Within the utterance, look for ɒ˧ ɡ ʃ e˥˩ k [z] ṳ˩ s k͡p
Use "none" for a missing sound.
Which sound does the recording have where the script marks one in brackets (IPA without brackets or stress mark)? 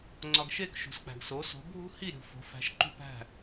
ʃ